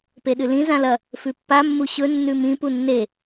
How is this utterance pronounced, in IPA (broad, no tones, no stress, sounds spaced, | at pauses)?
p e ɗ ɨ l ĩ z ã l ɐ | f ʉ pː a mː u ɕ ɵ nː ʉ m ĩ p u nː e